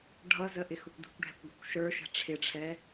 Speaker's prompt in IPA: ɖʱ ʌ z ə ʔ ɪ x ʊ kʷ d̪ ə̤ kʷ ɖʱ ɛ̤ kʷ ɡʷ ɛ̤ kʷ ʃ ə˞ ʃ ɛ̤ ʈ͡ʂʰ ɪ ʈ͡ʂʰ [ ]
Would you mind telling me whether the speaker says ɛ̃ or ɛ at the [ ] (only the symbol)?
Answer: ɛ